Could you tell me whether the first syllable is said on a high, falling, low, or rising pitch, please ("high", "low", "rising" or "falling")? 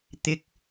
rising